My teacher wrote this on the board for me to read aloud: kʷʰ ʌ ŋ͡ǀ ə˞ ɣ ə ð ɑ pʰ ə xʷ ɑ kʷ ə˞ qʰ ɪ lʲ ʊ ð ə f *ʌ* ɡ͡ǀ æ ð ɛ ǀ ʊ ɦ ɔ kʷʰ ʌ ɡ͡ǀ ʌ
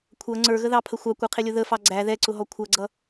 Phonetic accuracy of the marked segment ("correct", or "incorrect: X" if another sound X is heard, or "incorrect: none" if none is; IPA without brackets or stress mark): incorrect: ɑ